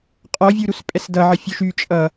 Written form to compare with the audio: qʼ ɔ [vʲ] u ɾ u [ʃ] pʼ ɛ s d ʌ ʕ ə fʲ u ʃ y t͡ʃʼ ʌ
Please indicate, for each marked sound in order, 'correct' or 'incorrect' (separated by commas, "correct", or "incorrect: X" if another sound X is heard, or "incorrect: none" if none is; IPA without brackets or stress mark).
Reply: correct, incorrect: s